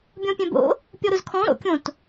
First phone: bʲ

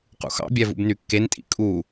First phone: q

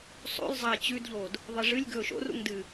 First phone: sˤ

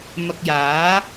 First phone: m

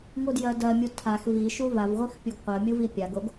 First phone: ŋʷ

